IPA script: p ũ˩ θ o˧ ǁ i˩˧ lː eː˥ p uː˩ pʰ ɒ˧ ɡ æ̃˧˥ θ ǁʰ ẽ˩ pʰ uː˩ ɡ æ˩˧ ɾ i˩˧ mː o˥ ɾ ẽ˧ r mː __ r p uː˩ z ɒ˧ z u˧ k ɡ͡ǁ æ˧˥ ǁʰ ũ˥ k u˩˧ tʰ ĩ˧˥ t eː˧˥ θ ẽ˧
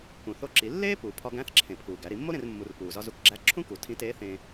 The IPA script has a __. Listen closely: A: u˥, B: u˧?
B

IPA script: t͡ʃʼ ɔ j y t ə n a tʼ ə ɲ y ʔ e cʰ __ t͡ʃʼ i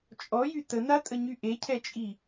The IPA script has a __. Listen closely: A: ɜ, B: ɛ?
B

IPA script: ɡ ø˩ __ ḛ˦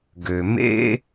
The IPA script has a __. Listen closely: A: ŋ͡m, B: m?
B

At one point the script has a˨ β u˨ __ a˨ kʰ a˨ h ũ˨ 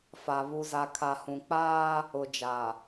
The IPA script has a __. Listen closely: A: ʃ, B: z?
B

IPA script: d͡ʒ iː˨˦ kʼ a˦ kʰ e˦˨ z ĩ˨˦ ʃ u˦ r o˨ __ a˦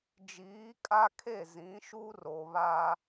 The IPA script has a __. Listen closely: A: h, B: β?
B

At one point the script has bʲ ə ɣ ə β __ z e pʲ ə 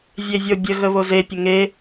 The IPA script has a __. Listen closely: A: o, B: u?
A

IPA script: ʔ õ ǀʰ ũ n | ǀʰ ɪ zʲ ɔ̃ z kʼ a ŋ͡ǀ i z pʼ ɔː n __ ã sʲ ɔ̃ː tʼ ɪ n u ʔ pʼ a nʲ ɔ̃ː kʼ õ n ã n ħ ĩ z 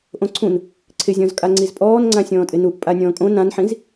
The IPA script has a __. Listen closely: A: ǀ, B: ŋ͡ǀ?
B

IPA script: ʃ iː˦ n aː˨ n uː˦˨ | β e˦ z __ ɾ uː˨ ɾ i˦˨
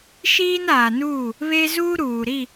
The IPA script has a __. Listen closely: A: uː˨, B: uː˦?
B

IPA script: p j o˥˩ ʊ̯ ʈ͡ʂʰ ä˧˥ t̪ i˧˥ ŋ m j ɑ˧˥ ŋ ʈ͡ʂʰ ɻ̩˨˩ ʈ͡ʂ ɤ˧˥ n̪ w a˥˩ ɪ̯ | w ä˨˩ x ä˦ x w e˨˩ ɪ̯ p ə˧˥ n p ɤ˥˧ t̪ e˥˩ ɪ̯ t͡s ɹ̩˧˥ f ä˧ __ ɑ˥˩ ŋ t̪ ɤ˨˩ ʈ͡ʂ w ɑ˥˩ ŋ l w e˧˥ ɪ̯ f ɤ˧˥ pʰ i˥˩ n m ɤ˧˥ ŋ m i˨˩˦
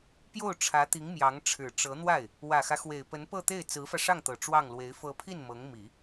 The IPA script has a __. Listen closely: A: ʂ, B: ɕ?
A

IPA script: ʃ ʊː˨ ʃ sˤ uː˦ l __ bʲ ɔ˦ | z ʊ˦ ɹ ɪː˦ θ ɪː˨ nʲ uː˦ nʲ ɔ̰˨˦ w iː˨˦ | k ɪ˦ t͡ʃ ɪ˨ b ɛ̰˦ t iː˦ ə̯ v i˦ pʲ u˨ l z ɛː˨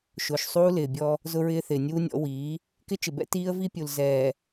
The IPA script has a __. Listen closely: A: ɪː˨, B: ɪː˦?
A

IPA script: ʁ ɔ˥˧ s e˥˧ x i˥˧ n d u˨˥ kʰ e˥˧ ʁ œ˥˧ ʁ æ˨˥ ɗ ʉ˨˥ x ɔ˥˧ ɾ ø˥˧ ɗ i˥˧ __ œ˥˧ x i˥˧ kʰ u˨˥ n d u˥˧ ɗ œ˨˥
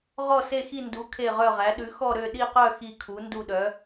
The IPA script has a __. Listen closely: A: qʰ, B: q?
B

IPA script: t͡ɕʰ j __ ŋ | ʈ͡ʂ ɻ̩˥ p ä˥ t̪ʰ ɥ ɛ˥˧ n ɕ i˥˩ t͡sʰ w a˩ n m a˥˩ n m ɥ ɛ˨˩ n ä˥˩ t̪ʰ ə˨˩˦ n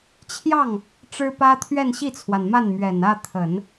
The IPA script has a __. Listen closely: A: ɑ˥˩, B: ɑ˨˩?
A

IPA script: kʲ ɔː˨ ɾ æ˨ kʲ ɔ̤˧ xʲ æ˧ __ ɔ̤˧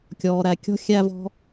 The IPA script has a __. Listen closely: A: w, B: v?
B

